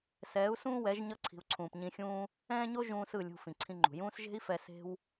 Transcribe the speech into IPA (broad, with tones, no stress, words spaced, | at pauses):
sɛː˨˦u̯sũː˦wɛ˨˦ʒ ɲʌ˧ǀʰi̤˨u̯ǀʰũː˨p ɲĩ˧xʲũː˦ | ɛ̃ː˦ɲo˦ ʒũː˦sɯ˦˨lʲṳ˧ fĩ˨ǀʰĩ˧ŋ͡ǃṳ˨ jũː˦s ʒe̤˦i̯fɛ˧ se̤˦w